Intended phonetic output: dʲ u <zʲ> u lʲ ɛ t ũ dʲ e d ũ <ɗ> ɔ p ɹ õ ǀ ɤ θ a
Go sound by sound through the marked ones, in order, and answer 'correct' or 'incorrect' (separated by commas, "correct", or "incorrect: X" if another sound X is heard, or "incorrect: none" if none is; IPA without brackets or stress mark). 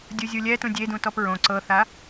correct, incorrect: t